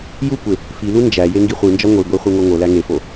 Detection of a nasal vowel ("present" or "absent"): absent